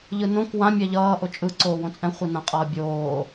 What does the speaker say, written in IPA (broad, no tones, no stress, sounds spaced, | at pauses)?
ʎ ɯ n õ k w ã mʲ ɛ ʎ ʌː ʔ o t͡ʃʼ ɯ ǀ oː w õ t͡sʼ ɛ̃ χʷ ɯ n ã qʼ ʌː bʲ oː